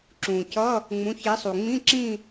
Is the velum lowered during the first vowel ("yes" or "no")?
yes